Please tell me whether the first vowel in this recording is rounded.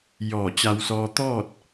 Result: yes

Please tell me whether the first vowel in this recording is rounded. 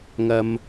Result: no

